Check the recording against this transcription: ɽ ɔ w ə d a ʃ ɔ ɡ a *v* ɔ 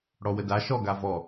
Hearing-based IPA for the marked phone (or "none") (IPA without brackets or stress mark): v